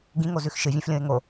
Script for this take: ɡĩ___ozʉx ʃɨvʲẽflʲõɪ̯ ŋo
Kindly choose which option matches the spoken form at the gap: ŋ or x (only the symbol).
ŋ